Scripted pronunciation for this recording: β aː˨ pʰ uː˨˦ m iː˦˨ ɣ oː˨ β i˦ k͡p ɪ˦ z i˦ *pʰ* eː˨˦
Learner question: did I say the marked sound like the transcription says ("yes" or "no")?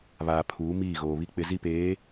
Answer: no